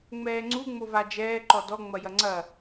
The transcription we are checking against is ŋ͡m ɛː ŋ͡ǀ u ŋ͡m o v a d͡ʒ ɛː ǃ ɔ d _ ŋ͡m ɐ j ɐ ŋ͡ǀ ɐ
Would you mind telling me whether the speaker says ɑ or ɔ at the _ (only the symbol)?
ɔ